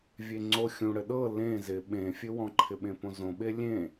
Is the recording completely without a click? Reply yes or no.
no